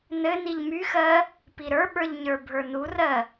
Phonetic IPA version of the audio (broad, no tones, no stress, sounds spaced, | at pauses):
n ɘ n i ʎ m y x ɜ | p i ɾ ə˞ ɓ ə˞ ʎ ɲ ə˞ bʱ ə˞ n u r ɜ